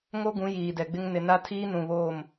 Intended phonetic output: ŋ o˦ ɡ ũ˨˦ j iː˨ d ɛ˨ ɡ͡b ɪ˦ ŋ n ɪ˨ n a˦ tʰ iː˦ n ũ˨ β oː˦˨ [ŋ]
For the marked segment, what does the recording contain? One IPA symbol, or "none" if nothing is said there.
m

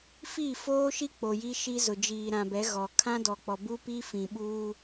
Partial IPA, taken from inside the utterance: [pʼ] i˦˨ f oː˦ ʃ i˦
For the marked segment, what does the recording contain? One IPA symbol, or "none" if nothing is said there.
f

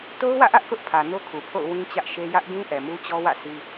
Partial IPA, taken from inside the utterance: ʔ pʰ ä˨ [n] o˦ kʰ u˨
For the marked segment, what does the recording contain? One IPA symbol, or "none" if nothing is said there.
n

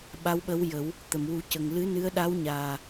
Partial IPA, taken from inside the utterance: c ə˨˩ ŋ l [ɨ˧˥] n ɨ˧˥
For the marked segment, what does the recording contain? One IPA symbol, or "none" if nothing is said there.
ɨ˧˥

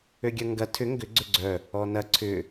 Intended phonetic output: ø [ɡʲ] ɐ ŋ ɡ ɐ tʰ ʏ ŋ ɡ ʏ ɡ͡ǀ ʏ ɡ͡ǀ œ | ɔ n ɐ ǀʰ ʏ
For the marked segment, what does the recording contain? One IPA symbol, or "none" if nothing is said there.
ɡʲ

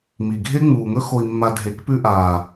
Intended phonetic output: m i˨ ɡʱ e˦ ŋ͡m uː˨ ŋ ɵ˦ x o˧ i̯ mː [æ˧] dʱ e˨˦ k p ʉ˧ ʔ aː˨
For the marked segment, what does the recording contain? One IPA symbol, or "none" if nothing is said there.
a˧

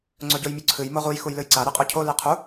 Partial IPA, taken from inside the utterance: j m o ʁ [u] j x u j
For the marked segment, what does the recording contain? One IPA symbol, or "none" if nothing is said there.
u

